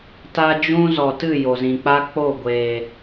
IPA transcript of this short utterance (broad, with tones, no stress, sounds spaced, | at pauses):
t a˦ d͡ʒ ũ˦ z ɔ˨ t ɨ˦˨ j o˨ z ĩ˨ k͡p a˦ k͡p o˦˨ ɡʷ eː˨